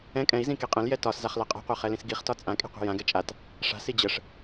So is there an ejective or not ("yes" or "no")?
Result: yes